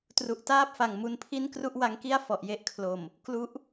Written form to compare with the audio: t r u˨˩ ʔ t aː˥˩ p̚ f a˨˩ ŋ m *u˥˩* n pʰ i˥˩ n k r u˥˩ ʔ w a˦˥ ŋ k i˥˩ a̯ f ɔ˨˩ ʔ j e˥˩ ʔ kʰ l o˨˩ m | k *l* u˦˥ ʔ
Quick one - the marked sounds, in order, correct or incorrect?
incorrect: u˧, correct

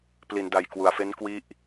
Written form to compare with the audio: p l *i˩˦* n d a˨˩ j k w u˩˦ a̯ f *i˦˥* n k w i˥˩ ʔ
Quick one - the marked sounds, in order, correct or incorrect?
correct, incorrect: e˦˥

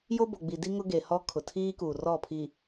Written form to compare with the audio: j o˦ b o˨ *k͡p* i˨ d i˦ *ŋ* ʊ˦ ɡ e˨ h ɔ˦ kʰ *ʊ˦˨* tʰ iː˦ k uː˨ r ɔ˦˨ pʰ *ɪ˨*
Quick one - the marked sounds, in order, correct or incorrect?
incorrect: ɡ͡b, correct, incorrect: ʊ˨, incorrect: i˨

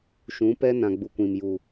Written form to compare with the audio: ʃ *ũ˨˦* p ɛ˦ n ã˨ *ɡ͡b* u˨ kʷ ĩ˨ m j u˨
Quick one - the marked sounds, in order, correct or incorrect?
correct, correct

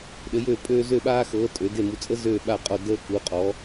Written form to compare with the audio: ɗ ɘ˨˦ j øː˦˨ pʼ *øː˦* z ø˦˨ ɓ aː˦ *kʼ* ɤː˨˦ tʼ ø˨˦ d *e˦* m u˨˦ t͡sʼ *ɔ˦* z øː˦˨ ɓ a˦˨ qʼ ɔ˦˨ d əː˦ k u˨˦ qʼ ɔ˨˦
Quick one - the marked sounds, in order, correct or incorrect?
correct, incorrect: x, incorrect: e˦˨, incorrect: ə˦

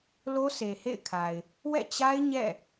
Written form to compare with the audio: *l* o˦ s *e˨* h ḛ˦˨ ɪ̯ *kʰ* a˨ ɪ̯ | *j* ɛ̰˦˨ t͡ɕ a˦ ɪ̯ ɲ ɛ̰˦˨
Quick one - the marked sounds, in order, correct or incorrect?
correct, correct, correct, incorrect: w

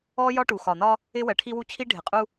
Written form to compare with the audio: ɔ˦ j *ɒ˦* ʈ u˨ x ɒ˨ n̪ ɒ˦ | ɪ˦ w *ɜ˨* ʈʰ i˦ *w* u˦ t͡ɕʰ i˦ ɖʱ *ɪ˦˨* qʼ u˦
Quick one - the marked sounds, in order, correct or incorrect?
correct, correct, correct, incorrect: ɪ˨

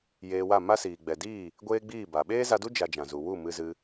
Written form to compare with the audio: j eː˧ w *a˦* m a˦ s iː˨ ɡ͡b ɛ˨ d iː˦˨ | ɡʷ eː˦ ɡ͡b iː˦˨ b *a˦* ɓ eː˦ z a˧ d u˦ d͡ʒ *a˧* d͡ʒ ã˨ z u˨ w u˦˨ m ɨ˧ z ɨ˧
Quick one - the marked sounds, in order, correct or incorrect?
incorrect: a˦˨, incorrect: a˨, correct

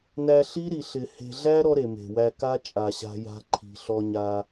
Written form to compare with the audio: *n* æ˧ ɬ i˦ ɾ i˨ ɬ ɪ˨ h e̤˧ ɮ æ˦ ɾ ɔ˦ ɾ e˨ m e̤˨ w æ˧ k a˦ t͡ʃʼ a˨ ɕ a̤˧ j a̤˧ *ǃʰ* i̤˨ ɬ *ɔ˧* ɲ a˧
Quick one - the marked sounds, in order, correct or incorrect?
correct, correct, correct

